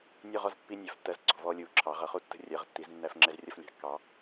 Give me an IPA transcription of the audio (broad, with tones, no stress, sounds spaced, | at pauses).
nʲ u˧ ʁ ɔ˧ z pː i˧ nʲ æ˩˧ f tː ɜ˧ z ǀ ɔ̤˩˧ v ɔː˧ lʲ uː˩˧ ǁʰ ɑ˩˧ ʁ ʌ˩˧ χ u˧ tː ə̤˧ rʲ ɜ˩˧ ʁ tː i˩˧ z nː æ˧ f ŋ͡ǁ ɛ˧ z rʲ ʌ˧ f lʲ ɑ̤˩˧ kː ɑ˩˧